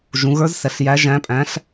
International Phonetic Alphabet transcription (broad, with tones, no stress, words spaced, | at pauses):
ʒũ˩˧ɣə˞˧˥zsɛ˩˧ɬ jæ˩˧ʒæ̃˩˧pʼæ̃˩˧ɬ